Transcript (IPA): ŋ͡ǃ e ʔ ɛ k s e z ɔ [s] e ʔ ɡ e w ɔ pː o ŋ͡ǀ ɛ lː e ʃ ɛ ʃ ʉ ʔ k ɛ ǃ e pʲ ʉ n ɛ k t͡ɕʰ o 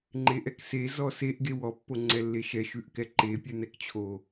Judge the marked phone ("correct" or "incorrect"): correct